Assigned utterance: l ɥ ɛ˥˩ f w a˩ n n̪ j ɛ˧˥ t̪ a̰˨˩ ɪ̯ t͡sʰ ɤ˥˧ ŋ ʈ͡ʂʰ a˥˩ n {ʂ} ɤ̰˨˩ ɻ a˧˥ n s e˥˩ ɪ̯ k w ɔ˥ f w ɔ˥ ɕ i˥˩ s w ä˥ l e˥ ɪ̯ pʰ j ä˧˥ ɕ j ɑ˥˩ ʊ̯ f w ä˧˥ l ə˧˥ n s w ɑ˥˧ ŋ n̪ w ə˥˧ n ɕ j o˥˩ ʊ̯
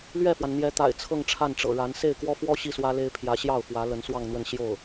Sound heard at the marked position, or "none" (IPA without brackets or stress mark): ʈ͡ʂ